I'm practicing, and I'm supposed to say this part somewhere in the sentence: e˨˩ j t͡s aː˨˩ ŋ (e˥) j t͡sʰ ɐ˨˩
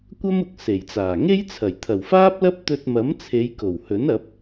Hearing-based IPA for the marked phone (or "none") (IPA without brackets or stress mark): e˥